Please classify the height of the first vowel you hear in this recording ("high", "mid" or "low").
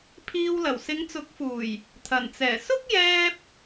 high